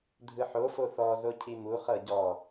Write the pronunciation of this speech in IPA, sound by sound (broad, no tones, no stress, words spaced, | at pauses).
dʱɯħofo θɔzo cʰimuχɤ ɟɔ